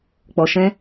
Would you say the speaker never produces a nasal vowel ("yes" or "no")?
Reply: no